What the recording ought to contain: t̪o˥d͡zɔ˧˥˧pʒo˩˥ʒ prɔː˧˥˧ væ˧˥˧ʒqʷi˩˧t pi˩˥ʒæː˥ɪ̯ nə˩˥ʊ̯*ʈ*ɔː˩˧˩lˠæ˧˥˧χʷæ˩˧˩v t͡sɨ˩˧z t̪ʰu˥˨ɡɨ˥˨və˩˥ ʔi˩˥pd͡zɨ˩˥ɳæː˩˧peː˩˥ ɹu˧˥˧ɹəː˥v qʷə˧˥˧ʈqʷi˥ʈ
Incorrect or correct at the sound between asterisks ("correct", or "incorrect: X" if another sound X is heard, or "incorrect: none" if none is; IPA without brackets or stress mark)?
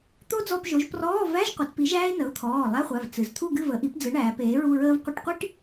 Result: incorrect: t̪ʰ